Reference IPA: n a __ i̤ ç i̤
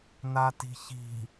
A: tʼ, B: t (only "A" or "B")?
B